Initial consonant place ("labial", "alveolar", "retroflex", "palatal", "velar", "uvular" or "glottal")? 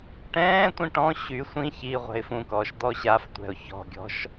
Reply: retroflex